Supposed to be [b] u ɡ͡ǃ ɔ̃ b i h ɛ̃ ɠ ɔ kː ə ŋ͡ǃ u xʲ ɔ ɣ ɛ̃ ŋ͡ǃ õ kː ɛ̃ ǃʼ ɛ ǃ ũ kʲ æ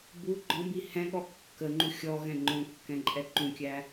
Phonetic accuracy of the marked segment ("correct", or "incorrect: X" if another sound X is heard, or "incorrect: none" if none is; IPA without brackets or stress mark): correct